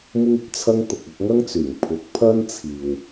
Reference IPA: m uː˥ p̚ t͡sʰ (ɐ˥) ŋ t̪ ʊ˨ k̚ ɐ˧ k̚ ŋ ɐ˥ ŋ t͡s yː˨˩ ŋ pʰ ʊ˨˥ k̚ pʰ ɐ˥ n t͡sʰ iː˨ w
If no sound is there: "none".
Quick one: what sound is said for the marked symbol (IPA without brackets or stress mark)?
ɐ˥